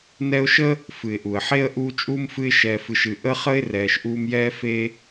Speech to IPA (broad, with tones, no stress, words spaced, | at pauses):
nɛ˦ʊ̯ʃə˥ | fɨ˩ɪ̯ʔu˩ə̯ħe˥ə̯ ʔuː˦t͡ʃʼuː˥mfɨ˦ɪ̯ ʃɛː˨fɨ˨ʃɨ˨ ʔə˥χə˥ɪ̯ rɛː˨ʃʔuː˦mjɛː˥fe˥